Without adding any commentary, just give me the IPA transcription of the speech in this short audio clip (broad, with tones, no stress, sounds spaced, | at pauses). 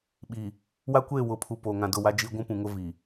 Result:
ɓ i˨ | w a˦ kʷ eː˦˨ w ʊ˨˦ pʰ u˨ p oː˨ ŋ ã˨ d ʊ˦˨ w a˦ d͡ʒ i˦ ɡʷ ũ˦ p ũ˨ ŋ ʊ˦ v i˨